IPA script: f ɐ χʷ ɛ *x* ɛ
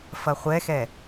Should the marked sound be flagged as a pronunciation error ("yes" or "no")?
no